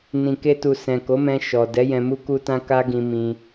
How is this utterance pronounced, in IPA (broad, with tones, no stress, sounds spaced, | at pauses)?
n ĩ˨ k e˧ t u˨ s ɛ̃˨ k o˨˦ m ɛ̃˧ ʃ ɔ˨ d ɛ˨˦ j ɛ̃˧ m u˦ k u˦ t ã˦ k a˦ ɡ ĩ˧ m ĩ˧